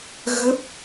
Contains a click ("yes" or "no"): no